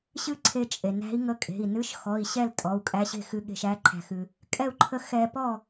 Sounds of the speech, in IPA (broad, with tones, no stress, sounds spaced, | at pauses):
ɕ ɨ˥˨ ǀʰ e˧ t͡ʃʼ e˩ n æ̤˧˥ i̯ ŋ ə˧˥ kʼ e̤˩˧˩ i̯ n ɨ˧˥˧ ʃ x ɔ˩˧˩ i̯ ɕ ɛ˥˨ l tʼ ɔ˩˧˩ u̯ kʼ æ˧˥ ɕ e̤˥˨ x ɨ˧˥ ɠ e̤˧˥˧ ʃ æ˧˥˧ ǃʰ æ̤˧ x ɨ˧ | kʼ ɛ˥˨ u̯ ǃʰ ə˥˨ x ɛ˧ p ɔ˥˨